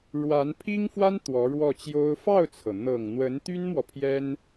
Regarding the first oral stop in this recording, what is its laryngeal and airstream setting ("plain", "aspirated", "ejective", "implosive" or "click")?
aspirated